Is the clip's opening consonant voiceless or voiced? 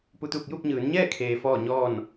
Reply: voiceless